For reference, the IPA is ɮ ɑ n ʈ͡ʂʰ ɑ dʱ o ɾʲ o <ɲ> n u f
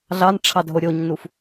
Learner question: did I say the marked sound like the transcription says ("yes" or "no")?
yes